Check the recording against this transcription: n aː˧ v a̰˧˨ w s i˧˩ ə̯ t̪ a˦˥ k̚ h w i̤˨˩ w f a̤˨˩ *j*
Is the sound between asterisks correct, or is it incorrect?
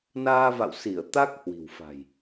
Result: correct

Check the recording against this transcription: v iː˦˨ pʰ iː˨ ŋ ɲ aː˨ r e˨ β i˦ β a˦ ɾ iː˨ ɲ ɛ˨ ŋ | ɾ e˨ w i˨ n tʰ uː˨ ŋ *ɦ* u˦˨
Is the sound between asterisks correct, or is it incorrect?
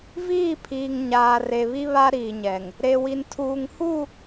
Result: incorrect: h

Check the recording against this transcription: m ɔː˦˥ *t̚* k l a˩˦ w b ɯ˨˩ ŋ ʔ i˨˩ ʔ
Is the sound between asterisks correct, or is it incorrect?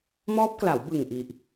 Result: incorrect: p̚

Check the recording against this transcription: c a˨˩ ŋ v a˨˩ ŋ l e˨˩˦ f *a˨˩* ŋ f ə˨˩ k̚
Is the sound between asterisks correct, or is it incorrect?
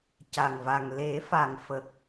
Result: correct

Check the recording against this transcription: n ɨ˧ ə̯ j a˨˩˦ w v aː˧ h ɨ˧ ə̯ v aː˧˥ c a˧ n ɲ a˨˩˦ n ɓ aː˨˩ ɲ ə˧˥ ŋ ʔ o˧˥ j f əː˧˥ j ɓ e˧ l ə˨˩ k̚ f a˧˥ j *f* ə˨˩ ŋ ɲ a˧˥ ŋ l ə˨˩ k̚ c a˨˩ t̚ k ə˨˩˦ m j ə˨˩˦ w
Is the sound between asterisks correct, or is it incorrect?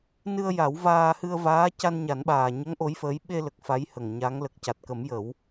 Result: incorrect: h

